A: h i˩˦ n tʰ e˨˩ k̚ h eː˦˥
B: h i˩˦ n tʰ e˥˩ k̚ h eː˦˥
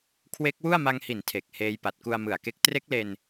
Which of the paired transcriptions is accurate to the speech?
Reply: A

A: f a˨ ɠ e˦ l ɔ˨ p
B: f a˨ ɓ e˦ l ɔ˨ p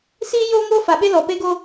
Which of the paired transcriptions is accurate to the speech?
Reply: B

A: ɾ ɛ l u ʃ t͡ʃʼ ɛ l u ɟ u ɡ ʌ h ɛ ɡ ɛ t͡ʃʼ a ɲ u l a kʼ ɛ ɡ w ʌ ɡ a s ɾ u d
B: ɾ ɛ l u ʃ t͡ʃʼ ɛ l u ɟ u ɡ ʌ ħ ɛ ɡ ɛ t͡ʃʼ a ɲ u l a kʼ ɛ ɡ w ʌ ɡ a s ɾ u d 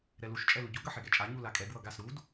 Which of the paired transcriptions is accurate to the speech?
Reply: B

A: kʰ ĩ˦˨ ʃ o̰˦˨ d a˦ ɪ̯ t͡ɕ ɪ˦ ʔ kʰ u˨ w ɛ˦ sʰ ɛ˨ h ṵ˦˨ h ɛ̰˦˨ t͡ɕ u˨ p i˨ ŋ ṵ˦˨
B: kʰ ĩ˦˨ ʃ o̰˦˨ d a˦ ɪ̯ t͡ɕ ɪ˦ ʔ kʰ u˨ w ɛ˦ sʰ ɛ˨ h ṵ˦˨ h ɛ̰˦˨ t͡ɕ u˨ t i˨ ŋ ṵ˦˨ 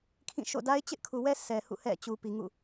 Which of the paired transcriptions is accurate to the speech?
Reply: A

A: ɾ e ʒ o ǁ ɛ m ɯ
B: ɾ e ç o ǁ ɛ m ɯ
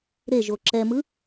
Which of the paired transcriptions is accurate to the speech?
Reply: A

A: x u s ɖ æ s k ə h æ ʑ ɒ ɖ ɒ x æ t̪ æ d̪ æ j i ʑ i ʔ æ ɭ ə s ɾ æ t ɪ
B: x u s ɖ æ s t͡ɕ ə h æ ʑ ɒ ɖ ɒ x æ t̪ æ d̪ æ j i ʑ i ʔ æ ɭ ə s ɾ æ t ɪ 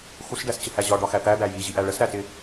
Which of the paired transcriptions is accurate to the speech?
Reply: B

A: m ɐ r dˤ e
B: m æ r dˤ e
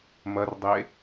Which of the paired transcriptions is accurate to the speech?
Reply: A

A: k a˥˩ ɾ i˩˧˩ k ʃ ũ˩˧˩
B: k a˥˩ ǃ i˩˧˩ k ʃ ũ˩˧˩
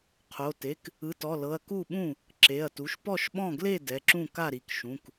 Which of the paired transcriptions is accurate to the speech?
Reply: A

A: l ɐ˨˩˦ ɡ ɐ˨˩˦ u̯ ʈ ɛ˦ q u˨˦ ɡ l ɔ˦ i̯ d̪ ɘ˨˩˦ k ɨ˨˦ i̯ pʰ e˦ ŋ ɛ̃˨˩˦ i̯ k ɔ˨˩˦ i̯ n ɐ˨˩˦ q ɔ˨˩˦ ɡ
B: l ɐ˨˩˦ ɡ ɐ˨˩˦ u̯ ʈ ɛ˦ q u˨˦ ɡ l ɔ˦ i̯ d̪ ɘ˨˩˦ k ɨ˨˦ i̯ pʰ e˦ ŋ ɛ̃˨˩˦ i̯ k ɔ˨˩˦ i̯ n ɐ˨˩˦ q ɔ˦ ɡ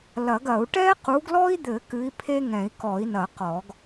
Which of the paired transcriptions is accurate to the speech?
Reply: A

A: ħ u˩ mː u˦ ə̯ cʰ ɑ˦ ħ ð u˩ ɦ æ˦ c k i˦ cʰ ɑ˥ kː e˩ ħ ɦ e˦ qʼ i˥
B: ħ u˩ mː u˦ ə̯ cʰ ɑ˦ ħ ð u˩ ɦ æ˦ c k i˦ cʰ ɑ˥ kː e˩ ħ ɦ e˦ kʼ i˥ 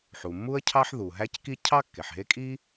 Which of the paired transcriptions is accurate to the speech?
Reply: B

